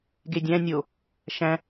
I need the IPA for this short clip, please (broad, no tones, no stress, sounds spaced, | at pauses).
ɡ e dʲ æ̃ nʲ o | ʃ æ̃